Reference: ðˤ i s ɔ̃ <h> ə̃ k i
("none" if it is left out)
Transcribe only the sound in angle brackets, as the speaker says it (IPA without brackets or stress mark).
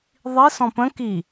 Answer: p